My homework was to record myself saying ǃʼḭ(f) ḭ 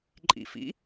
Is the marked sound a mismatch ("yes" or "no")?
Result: no